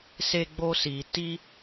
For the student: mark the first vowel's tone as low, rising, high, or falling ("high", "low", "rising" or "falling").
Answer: high